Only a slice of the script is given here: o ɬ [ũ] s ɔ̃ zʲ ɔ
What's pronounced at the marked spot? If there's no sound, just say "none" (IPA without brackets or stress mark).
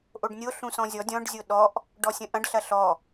ũ